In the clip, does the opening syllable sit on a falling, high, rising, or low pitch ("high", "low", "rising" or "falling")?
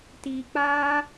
low